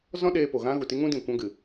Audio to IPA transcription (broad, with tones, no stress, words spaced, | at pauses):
zɔ̃˦ɗeː˧ po˨ɣã˦ɣu˨ ti˦ŋũ˦dĩ˨ kʷã˦ɡɨ˨